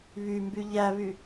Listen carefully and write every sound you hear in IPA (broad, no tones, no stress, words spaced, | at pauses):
βymby ʎæβy